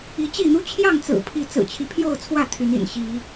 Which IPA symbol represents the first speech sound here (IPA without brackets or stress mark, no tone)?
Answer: i